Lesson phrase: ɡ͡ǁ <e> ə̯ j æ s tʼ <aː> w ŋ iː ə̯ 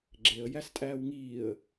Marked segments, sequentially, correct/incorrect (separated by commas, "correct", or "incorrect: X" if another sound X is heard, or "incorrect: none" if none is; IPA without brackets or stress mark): correct, incorrect: æː